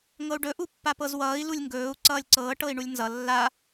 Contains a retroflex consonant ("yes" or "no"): yes